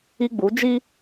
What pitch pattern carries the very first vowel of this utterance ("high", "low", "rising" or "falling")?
high